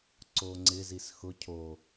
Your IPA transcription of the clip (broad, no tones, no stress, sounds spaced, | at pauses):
ǀ o ŋ͡ǀ ɪ z i s x ʊ cʰ o